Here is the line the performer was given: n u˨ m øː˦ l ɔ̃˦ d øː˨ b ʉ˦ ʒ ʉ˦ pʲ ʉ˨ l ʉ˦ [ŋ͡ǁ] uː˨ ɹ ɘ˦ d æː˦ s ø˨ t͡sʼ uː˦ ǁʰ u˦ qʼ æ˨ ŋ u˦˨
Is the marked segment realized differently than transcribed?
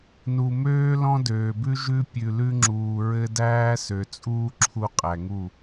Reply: no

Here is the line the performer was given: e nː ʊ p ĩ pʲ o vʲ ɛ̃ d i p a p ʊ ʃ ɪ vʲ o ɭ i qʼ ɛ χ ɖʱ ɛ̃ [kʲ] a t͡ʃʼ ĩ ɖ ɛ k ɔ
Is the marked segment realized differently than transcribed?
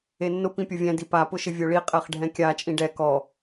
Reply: no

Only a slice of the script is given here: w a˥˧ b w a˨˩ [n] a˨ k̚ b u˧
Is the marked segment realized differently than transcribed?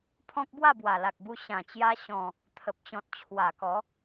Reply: yes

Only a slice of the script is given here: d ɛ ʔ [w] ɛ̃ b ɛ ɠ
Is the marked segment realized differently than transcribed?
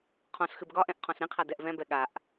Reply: yes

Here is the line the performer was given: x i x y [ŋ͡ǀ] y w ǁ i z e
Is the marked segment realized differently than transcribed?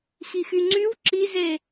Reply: no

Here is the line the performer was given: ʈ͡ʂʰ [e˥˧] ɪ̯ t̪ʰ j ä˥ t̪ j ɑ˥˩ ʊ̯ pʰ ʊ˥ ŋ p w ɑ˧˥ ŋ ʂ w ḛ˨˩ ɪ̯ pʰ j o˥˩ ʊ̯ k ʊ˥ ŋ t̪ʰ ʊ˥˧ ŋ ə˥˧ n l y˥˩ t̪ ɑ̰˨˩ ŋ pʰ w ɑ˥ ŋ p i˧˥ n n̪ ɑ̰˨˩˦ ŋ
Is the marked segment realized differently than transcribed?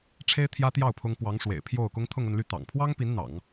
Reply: yes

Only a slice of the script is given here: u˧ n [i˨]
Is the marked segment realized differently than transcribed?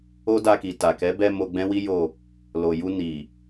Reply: no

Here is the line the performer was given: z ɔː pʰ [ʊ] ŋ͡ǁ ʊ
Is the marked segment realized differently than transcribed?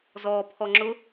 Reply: yes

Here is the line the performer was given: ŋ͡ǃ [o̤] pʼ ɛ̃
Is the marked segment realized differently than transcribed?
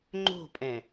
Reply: no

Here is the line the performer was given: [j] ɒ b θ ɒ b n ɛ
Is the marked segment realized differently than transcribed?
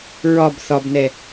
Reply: yes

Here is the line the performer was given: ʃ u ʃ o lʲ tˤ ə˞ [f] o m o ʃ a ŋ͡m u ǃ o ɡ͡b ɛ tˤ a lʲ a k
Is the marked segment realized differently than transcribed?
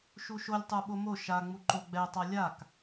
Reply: yes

